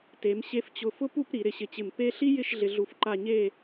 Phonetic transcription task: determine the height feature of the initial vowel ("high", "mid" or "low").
mid